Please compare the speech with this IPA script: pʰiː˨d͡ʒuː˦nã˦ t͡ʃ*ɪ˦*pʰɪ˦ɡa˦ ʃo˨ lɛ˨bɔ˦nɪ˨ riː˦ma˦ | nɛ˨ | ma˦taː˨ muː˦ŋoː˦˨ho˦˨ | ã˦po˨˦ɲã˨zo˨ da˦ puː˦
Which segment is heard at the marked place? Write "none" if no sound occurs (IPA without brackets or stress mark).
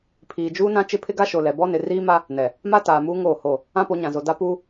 ɪ˦